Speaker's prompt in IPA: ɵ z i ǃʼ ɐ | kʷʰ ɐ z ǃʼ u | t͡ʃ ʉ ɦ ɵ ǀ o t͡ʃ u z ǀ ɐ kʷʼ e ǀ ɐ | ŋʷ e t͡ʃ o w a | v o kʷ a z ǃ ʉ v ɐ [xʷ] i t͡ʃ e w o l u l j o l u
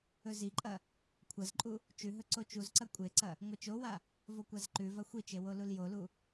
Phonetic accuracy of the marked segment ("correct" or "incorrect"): correct